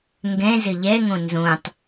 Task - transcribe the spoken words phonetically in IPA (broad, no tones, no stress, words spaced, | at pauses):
ŋɡɛ̃ zɘʎɛŋõ nzõtˤ